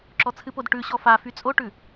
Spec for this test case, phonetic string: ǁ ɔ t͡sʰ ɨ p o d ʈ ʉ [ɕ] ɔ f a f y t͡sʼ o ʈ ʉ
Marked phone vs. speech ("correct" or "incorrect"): correct